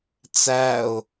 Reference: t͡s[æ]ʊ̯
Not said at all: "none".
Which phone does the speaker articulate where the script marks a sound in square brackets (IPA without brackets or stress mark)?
æ